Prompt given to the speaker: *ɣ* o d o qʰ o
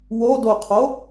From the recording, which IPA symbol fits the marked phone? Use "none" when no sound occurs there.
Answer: w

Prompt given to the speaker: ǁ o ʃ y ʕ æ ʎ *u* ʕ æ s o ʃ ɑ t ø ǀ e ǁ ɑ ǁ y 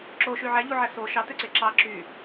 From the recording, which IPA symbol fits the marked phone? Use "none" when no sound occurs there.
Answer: u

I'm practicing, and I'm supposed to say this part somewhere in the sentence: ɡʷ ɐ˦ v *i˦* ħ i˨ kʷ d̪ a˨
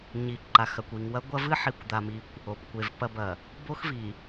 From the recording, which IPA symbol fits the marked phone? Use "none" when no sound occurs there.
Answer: ɨ˦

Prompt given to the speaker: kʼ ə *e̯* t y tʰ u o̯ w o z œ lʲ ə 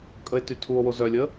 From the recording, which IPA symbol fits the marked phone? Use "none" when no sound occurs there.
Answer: e̯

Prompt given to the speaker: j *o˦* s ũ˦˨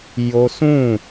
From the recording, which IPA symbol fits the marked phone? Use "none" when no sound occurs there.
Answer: o˦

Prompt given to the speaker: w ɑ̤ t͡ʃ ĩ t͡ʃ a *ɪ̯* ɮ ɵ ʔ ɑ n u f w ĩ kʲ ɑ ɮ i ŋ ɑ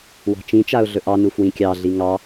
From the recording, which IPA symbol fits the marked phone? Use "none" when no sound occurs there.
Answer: ʊ̯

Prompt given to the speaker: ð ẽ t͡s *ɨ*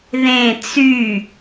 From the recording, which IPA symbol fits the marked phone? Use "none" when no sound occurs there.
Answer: y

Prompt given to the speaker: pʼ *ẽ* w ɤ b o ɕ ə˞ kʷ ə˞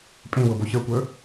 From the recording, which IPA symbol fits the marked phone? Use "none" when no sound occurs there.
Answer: ẽ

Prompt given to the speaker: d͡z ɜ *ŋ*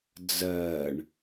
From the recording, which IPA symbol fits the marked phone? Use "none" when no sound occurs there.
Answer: ɳ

